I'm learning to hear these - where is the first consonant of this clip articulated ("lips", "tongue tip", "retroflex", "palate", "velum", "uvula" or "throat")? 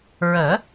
tongue tip